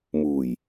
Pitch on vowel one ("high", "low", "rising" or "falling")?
low